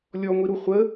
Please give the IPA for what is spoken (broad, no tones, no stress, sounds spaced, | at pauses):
lʲ ɔ ŋʷ i ɾ u χʷ ə